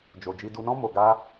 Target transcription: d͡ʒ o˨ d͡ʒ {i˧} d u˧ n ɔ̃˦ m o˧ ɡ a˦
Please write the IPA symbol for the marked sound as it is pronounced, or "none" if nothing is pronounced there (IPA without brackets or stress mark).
i˧